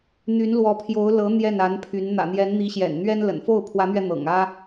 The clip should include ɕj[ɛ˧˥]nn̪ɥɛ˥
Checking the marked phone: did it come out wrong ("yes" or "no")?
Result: yes